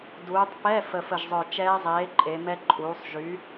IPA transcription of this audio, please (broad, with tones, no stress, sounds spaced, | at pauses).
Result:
d uː˩˧ tˤ p ɛ˧˥˧ f ə˨˩ f ə˨˩ ʒ zˤ œ˨˩ t͡ʃ ɛː˦˥ zˤ eː˨˥ ǃʼ e˩˧ m ɛ˦˥ ǃʼ uː˩˧ sˤ ʒ y˨˥